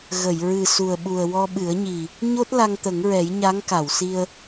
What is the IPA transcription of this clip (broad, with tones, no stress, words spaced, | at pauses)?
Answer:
ɣə˨˩˨j ɹɨ˨˩su˨˩ə̯ɓu˨˩ə̯ wɔ˧ɓɨ˨˩˦ə̯ɲi˨˩ | ɲo˦˥t̚ la˧ŋt̪ə˨˩˦ŋɹɛ˨˩˦j ɲa˧˥ŋka˨˩˨wsi˧ə̯